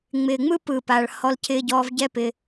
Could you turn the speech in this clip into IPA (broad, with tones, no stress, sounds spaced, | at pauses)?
ŋ͡m ɪː˨ ŋ͡m ɯ˦ p ɯ˨ p a˨ ɭ h ɔ˧ l cʰ ɪː˧ ɟ ɔː˧ v ɟ ɛ˦ p ɪ˧